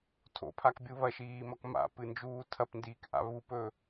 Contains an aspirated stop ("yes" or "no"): yes